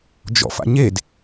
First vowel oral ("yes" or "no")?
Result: yes